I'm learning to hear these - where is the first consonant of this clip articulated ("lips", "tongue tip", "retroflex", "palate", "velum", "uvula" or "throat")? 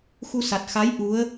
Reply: velum